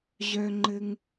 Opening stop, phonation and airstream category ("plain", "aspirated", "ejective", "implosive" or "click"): click